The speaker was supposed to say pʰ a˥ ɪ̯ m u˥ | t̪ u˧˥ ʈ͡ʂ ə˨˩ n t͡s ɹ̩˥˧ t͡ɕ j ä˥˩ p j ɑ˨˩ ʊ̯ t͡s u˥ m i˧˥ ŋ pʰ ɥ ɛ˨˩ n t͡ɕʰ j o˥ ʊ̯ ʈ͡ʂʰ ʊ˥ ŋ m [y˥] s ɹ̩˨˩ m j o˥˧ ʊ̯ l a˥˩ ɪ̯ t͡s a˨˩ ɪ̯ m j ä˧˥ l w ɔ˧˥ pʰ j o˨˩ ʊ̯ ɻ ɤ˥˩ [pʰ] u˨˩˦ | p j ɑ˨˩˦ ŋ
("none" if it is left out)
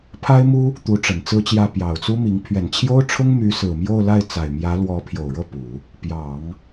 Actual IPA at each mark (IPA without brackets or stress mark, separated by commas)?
y˧˥, p